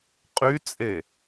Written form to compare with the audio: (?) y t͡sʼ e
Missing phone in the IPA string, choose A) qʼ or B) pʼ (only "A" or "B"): A